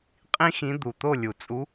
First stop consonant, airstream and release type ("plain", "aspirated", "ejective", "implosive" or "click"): ejective